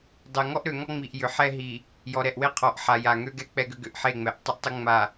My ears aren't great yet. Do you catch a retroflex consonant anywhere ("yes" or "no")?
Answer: no